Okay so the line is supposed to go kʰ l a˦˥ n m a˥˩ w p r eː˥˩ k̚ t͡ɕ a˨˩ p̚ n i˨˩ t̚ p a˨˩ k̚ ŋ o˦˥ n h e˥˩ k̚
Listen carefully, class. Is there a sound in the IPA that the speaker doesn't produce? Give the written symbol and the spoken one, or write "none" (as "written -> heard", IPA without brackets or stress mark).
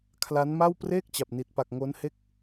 none